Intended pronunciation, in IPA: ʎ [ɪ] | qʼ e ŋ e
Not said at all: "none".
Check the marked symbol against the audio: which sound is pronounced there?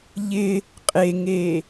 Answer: ɪ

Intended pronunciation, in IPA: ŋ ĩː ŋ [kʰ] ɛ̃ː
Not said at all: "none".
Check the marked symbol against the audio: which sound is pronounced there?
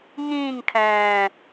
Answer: kʰ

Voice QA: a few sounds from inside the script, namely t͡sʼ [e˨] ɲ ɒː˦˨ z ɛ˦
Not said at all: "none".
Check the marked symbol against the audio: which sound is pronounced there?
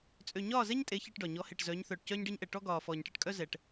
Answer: ø˨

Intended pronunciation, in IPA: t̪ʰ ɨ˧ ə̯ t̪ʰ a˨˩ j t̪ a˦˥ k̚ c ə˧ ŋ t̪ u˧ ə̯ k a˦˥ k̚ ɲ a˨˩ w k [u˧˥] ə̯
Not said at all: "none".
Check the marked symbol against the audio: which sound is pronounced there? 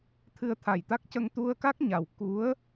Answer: u˧˥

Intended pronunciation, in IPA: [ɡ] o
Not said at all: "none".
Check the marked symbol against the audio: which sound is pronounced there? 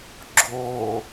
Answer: ɡ͡ǁ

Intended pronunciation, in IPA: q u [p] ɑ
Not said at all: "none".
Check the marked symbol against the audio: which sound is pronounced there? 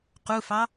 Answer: f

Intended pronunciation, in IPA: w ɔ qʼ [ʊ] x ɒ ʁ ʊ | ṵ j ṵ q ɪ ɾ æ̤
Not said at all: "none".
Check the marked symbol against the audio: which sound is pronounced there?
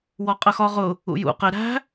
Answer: ə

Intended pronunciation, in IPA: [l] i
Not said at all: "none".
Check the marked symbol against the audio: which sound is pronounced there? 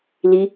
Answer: l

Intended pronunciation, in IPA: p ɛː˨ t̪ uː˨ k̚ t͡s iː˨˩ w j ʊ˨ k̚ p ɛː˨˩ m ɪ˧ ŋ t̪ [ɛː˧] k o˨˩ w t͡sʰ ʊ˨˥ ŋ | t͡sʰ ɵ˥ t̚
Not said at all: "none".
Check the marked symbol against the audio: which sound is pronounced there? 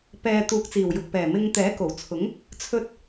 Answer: ɛː˨˥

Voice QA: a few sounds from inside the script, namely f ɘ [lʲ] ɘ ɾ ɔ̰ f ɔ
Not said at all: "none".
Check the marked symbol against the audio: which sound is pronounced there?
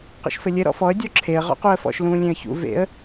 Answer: lʲ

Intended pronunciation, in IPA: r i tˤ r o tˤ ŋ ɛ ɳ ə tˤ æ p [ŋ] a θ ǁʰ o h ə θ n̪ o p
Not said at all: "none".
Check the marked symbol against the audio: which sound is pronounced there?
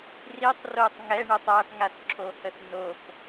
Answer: ŋ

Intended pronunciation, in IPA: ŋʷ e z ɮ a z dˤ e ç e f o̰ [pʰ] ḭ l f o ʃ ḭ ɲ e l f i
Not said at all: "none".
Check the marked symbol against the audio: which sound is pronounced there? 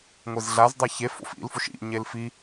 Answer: f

